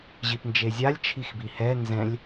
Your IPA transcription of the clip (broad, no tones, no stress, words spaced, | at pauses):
ʑipnd͡ʒezʲalʲ t͡ʃʰixbihɛ nzɛ̃lʲ